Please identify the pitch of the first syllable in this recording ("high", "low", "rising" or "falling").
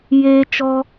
high